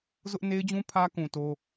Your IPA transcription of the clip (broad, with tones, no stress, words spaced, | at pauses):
zʊ˦ʔ ne˦ɪ̯d͡ʑũ˦ pʰä˦kũ˨ to˦